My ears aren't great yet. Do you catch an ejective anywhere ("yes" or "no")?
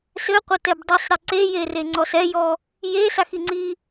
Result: no